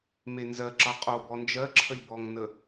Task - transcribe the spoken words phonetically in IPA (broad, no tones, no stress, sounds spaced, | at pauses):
m e n z ɜ ǁ ʌ qʼ o b ɔ n d͡ʒ ɜ ǁʰ ə lʲ b ɔ ŋ n ə